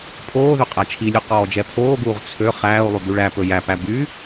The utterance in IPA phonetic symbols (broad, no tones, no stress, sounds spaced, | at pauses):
pʰ oː ð ø qʼ æ t͡ʃʰ i lʲ ʉ q ɔː d͡ʒ ɛ pʰ oː ɡ uː ʁ t͡sʰ ø χ æː u̯ lˠ y b y ɭ æ p ɵ j æ p æ b y